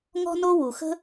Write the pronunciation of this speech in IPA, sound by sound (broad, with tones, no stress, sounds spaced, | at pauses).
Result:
ŋ ɔ̤˥ n o˥ w u˩ x ə̤˥